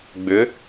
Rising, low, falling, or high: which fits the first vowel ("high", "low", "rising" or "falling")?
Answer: rising